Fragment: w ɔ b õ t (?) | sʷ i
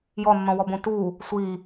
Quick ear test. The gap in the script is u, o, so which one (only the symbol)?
u